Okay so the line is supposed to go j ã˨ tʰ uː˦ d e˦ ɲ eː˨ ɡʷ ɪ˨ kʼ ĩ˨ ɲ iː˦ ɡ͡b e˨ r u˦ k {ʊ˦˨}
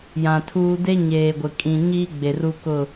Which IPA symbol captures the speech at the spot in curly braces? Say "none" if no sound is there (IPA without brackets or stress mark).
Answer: ʊ˦˨